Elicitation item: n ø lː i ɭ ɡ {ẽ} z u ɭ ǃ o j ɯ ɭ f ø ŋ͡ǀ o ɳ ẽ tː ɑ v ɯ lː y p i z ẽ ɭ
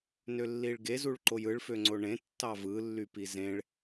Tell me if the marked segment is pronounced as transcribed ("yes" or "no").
no